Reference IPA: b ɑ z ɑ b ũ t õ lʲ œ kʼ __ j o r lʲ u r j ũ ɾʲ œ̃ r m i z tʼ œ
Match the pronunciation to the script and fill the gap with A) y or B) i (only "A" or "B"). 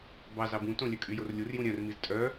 A